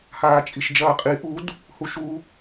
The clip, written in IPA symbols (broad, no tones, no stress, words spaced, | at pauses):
haːt͡ʃʼiʃd͡ʒɐːqʼi ʔud | huʃu